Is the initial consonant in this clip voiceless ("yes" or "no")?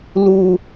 no